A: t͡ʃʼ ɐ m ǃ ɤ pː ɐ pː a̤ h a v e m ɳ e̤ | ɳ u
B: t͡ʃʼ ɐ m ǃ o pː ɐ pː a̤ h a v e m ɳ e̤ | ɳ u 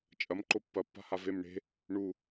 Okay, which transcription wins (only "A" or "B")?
B